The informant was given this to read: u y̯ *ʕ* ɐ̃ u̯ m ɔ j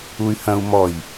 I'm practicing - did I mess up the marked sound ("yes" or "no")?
yes